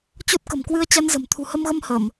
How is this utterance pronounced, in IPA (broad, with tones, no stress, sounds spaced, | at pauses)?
t͡ɕ o˦˥ t̚ k ə̤˨˩ m k w ɨ˧ ə̯ t͡ɕ a˧ n z ə̤˨˩ m t̪ʰ ṳ˨˩ h ə˧ m ɣ ə˧ m h ə˧˩˨ m